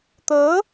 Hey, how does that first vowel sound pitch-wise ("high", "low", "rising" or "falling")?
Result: rising